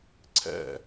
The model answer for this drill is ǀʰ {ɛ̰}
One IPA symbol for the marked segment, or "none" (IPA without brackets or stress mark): ɛ̰